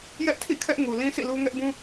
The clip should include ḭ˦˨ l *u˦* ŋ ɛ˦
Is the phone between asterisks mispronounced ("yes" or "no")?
no